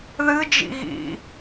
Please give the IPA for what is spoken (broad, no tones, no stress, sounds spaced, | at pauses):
ð ɨ d͡ʒ ḭ ɣ ḭ